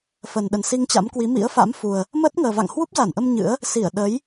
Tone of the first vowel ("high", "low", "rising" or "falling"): low